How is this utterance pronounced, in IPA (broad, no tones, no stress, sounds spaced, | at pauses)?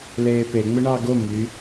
l eː p e ŋ͡m ɪ ɳ ɑ ɡ o m y